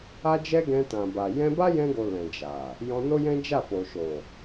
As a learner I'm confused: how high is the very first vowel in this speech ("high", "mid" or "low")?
low